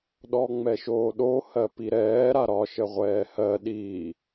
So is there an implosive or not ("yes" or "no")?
yes